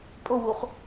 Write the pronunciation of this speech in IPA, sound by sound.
pʼ o w u χ

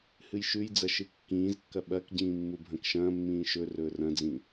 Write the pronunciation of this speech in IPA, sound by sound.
h ɨ j ʃ ʉ j d͡z ɐ ʃ ɨ kː ĩː z kː ɐ ɓ ɐ k ɟ ĩː mː u bʱ ɐ̃ k ʃ ɐ̃ː mː ĩː ʃ ɵ r ɵː r ɐ̃ d͡z ĩ

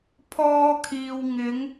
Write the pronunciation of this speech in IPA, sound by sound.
pʰ ɔː˧ kʰ iː˨ w ŋ ɪ˨˧ ŋ

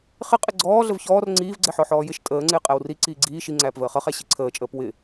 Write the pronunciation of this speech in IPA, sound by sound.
χ ɪ qʼ ɪ ɡ͡ǀ ɔː ɮ ə v ç ɔː r ŋ͡ǀ iː v ɡ͡ǀ ɛ ħ ɔ ħ ɔː j ɪ ʃ tʼ əː ŋ͡ǀ ɪː qʼ æ w r i ǀ iː ɡ͡ǀ iː ʃ i ŋ͡ǀ æː p v əː χ ʌ χ æ ɕ i ǀʰ əː t͡ʃʼ əː p w ɪ

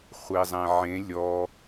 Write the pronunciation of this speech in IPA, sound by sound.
χʷ e zˤ ɛ̃ ʕ ẽ lʲ ɔ

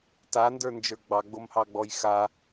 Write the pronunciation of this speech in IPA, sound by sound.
t a n d ə˞ n d͡ʒ ə˞ ɡ͡b ɑ ɡ͡b o m h ɑ ɡ͡b ɔ j x a

